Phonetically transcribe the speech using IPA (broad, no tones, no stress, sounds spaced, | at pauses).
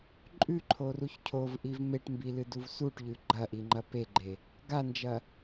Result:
ǃʼ ʉ ǃʰ o r u ç cʰ o v ʔ i v m e ʈ m b i l ɨ d u v s u ʈ ʎ ʉ ɡ͡ǃ ɐ ʔ i ŋ͡ǃ ɐ p e ɡ͡ǃ e | ɡ a n d͡ʒ ɐ